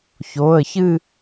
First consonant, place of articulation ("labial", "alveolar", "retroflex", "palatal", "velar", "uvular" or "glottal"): palatal